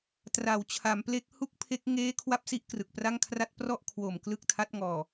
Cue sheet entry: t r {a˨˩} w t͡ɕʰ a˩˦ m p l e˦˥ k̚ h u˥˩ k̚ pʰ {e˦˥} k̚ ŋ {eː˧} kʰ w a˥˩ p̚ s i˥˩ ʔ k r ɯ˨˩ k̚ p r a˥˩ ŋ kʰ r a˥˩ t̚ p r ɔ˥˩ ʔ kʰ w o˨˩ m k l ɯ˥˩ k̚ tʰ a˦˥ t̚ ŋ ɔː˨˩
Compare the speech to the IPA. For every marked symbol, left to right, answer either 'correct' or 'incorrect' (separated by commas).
incorrect, correct, incorrect